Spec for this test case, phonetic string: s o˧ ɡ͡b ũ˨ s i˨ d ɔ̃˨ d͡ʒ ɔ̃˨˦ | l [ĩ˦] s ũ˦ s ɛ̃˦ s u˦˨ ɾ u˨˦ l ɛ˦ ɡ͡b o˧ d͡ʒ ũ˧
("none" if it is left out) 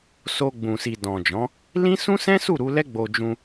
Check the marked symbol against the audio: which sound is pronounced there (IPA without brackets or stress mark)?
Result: ĩ˦